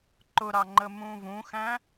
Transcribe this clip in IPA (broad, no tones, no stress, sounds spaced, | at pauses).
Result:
ǃ ʊ ɾ ɑ ŋ͡ǃ ə m ũ v ũ x æ̃